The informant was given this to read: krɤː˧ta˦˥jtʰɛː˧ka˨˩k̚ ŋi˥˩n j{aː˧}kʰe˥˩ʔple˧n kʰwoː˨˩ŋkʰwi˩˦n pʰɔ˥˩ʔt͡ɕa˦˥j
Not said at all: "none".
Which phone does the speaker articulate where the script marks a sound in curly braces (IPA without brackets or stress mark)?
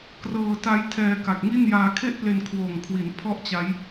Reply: aː˧